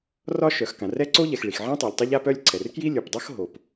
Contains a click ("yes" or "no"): yes